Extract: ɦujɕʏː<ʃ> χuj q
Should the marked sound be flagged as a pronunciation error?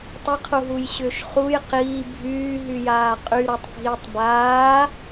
no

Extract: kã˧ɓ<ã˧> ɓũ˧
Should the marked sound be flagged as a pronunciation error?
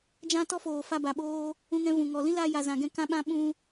no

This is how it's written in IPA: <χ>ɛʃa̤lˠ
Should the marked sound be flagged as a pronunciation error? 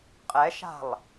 yes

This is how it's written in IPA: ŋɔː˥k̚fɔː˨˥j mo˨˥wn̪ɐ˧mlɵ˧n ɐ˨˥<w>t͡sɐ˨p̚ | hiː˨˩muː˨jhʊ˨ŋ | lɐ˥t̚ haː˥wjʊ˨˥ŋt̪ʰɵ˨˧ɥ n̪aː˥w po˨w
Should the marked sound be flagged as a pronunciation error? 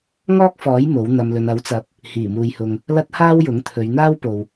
no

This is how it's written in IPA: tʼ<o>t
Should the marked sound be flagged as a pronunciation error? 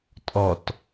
yes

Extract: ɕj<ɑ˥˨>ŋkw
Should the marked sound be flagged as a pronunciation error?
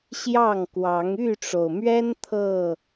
no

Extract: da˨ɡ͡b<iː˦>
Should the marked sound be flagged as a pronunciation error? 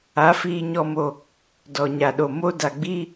no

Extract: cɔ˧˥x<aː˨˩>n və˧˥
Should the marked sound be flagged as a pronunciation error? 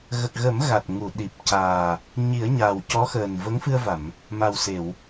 yes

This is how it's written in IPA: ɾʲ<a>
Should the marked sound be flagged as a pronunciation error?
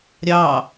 yes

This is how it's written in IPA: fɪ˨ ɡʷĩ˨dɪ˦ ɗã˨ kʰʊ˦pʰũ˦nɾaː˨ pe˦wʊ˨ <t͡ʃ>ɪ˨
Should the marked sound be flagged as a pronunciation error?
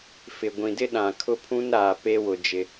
yes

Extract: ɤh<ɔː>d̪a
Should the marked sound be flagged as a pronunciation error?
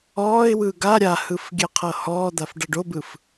no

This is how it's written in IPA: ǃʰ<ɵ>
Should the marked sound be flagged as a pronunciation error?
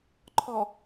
yes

